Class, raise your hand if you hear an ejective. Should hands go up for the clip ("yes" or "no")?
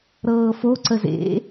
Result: no